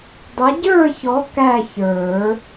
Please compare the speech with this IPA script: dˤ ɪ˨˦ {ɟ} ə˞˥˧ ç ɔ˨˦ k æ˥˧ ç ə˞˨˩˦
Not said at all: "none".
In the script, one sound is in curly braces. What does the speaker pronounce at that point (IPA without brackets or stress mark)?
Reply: ɟ